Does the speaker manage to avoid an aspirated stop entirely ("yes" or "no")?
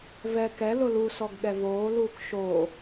yes